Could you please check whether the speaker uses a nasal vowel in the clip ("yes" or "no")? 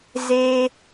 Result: no